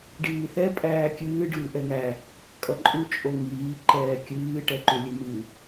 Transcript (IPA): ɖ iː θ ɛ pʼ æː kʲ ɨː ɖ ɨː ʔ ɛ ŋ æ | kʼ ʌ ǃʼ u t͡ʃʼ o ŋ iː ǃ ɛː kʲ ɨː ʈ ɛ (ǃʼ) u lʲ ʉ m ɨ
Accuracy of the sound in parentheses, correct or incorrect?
incorrect